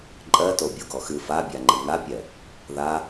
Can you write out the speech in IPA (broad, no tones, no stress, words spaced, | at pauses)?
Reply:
ǃʼɜto bʲoɡɔxɨ fabʲaŋ͡ǃɨ ŋapʲɛ | ða